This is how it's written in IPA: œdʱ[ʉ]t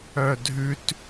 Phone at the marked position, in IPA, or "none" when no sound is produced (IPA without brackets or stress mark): ʉ